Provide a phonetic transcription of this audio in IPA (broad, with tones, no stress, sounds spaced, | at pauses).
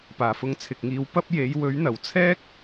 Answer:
p aː˨˩ f ʊ˧ ŋ t͡sʰ ɪ˨ k̚ ŋ iː˧ w p ɐ˥ p̚ j e˨˥ j w ɵ˨˥ ɥ n̪ ɐ˨˩ w t͡sʰ ɛː˥ k̚